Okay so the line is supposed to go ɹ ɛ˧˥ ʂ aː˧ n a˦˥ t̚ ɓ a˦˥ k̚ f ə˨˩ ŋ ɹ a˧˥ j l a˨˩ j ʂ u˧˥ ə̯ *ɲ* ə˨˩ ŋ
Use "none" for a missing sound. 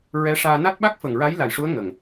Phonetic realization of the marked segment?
ŋ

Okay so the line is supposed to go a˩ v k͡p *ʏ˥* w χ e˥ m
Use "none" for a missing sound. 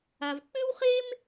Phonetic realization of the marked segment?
ʏ˥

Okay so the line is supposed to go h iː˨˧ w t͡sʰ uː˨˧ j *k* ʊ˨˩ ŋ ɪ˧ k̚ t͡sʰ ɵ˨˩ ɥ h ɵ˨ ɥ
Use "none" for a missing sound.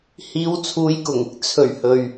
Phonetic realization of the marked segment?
k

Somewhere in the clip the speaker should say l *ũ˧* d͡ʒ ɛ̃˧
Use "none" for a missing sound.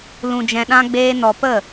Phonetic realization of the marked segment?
ũ˧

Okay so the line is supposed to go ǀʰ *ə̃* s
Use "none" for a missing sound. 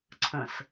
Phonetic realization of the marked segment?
ə̃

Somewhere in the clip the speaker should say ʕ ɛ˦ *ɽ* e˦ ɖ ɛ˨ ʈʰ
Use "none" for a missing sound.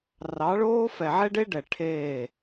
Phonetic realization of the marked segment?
ɖ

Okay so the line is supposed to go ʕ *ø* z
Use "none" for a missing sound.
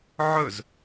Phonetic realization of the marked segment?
ɵ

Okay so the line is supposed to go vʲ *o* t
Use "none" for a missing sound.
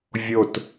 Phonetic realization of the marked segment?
o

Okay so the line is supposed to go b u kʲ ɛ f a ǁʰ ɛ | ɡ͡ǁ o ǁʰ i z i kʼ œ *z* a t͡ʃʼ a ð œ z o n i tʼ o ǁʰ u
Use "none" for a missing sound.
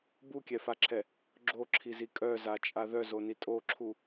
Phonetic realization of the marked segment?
z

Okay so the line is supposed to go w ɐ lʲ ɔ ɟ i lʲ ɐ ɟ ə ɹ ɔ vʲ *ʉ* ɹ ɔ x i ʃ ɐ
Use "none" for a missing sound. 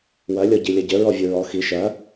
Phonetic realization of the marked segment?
u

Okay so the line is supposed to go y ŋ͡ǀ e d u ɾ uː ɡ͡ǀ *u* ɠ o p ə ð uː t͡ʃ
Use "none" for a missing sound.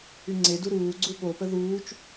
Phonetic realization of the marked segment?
u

